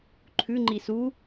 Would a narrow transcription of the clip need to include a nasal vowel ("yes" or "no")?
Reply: no